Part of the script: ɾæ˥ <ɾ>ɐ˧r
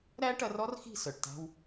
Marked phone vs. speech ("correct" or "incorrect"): incorrect